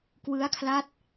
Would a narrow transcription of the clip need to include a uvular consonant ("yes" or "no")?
no